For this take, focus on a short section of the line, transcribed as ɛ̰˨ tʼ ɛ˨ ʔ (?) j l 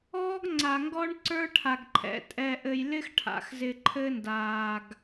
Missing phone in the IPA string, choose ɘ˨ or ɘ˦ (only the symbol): ɘ˨